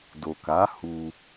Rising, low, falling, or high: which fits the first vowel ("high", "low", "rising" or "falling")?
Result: low